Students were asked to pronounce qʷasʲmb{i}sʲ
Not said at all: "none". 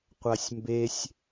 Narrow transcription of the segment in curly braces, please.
e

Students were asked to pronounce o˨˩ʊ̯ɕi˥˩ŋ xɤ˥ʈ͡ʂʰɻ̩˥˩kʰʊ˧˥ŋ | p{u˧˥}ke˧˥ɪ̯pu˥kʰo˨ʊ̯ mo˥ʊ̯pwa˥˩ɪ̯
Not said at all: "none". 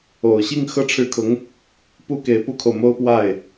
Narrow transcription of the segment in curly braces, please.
u˥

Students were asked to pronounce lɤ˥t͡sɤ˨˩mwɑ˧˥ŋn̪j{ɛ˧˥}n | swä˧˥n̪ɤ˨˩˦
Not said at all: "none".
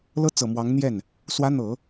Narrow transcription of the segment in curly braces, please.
ɛ˥˩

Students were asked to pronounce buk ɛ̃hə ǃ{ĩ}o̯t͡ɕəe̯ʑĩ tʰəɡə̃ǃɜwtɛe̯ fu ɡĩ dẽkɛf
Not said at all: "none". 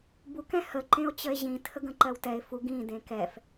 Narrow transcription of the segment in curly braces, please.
ẽ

